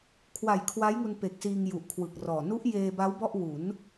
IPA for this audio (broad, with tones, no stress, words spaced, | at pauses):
kʰwa˨˩jkʰwa˦˥jŋu˧n pe˨˩k̚siː˧ŋ ju˨˩ʔkʰwɯ˨˩k̚rɔː˨˩ nu˦˥ʔjeː˧ba˦˥w bɔ˥˩ʔ wu˩˦n